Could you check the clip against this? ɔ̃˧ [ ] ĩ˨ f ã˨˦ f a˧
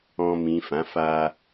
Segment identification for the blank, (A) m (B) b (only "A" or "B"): A